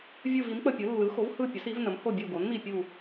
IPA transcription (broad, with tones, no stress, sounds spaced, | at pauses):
vʲ ɯ˦˨ v i˩˥ m k͡p ə˦˨ pʲ ɯ˩˥ lː ɯ˩˥ x o˩˥ v h ɯ˦˨ pʲ ə˩˥ s i˩˥ v n ə˩˥ m h o˦˨ bʲ ə˦˨ o̯ ɡ o˩˥ n m i˦˨ pʲ u˦˨